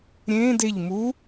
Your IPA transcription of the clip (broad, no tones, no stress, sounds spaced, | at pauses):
ɾʲ ẽː d e ʎ m u